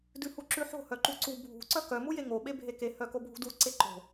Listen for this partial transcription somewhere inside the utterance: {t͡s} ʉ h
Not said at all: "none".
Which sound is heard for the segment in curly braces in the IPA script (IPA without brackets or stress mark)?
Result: d